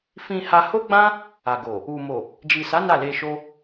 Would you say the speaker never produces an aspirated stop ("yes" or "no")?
yes